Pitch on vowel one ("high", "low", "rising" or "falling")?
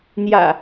low